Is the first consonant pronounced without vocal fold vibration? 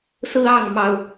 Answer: yes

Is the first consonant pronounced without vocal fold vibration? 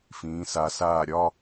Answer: yes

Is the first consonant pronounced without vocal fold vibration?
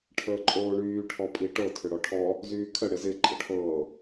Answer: yes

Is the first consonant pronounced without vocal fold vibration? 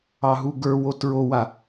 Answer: no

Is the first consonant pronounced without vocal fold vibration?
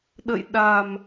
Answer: no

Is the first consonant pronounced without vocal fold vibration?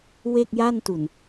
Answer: no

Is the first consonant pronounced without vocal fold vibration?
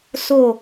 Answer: yes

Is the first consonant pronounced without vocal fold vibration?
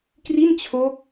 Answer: yes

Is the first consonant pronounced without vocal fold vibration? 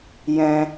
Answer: no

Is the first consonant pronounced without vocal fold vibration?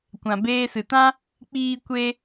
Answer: yes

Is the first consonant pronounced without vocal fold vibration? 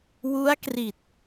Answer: no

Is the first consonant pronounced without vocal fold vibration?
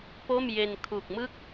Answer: yes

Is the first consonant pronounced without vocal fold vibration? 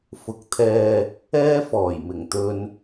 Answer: yes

